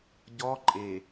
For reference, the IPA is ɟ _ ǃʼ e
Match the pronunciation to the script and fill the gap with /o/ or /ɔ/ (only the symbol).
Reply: ɔ